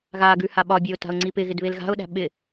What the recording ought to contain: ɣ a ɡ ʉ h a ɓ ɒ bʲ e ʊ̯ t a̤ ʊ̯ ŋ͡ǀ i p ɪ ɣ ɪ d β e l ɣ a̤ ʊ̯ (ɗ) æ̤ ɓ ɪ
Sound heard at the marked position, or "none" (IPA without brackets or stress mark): ɗ